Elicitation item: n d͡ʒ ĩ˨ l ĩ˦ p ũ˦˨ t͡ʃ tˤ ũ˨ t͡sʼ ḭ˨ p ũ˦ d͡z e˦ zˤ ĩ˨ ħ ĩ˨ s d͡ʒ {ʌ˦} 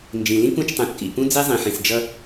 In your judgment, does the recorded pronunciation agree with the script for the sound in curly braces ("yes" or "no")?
yes